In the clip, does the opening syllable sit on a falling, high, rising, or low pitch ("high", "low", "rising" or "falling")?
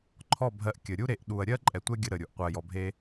falling